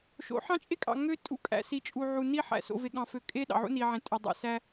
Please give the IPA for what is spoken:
ʃo̰˨˦ħɑ̃˦t͡ʃʼe˦kʼɑ̰˨ ŋø˦ tʼṵ˦kʼæ̰˨si˨t͡ʃʼu˨ ʕu˨ ni˦ ħæ̰˨ so̰˨ve˨ɠɑ̃˨fø˨ kʼe˦ ɗɑ̰˨ʕṵ˦ni˨ʕẽ˨ tʼø˨dˤḛ˨ sæ˦

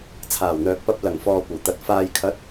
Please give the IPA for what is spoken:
t͡sʰaː˨˩wn̪œː˨k̚pɐ˧p̚ lɐ˨˩ŋ fɔː˨kʷɐ˨˩wt̪ɐ˨t̚ faː˨jkʰɐ˨˥t̚

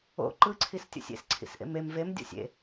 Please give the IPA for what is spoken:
o̰ ǃɯǀʰistʲo̰sʲ ḛsǀʰḭsʔḛm em vemdʲo̰ sʲḛ

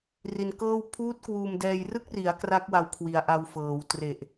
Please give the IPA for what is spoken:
ri˧nkɤː˥˩w pʰuː˦˥t̚ kwuː˧mdɛː˧j rɯ˦˥k̚ri˩˦a̯ kra˦˥k̚wa˧w kʰwi˨˩a̯ʔa˧w fɤː˩˦w tre˨˩ʔ

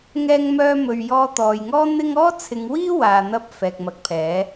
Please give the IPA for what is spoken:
ŋɛː˧ŋ mœː˧ mɵ˨ɥ jɔː˧t̪ɔː˨jŋɔː˥ n̪ɪ˥ŋ ɔː˥t͡sʰɪ˨˧ŋwiː˥ waː˨n̪ɐ˧p̚ fɛː˨k̚mɐ˨˥k̚pʰɛː˨˥

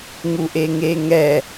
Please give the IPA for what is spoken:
ŋuʔeŋeŋɛ

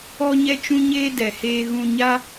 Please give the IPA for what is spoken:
ɔ˦ɲɛ˦t͡ʃũ˦ɲeː˦ dɛ˨heː˧ ɣũ˧ɲa˦

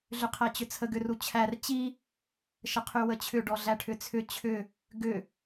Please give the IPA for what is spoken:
ɮʏqʰæt͡ɕʏt͡sʰə ɡʏrut͡ɕʰær t͡ɕi | ʃəqʰywət͡ɕʰʏ ɖɔɮæʈʰʏt͡sʰʏ t͡ɕʰʏ | ɡʏ

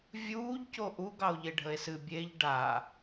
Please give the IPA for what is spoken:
vʲuːʎco ʔu ɡɑo̯ʎeɖʱəe̯sɨ bʲeʎ ɖa

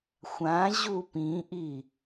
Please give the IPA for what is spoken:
xʷãʑu pĩʔi

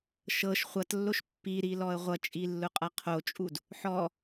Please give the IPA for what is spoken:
ʃɤʃ χʷʌtlːoʃ pːiɾilɔə̯ ʁʷʌt͡ʃʼilːʊqʼʌ qʰot͡ʃʼud | ħɔ

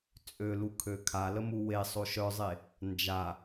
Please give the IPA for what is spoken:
t͡sʼølukʰø kʰaləmu wesˤo ʃœzˤe | nd͡ʒa

